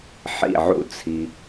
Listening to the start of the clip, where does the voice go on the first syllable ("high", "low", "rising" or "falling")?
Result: falling